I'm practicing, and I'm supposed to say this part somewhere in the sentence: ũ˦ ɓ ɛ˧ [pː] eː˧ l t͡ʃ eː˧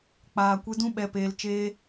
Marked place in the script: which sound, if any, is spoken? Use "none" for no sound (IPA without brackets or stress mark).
p